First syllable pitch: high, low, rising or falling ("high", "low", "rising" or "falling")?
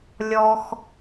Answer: high